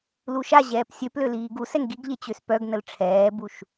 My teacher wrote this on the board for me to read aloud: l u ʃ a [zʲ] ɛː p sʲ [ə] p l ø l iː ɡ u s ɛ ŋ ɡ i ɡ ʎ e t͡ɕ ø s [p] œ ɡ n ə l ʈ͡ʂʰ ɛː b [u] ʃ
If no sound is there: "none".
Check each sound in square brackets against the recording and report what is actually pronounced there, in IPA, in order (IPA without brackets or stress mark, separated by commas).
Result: ʑ, ø, p, u